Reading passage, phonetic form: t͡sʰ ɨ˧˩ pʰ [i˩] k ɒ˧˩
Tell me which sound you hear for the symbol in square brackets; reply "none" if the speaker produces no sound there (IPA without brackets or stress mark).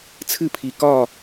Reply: i˩